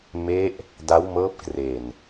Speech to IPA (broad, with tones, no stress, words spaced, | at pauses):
me˦˥ʔ | da˦˥wmɤː˦˥p̚kre˨˩n